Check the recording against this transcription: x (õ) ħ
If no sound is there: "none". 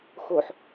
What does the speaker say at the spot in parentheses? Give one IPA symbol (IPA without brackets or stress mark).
o